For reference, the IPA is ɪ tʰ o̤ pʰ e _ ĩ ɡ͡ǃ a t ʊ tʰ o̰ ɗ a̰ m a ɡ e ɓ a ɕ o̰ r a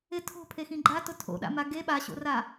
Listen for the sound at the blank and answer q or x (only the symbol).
x